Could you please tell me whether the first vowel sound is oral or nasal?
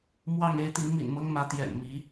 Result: oral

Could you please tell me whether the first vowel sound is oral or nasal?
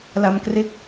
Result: oral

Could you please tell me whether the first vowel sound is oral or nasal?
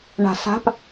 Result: oral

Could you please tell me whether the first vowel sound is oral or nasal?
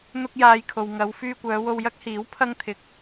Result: oral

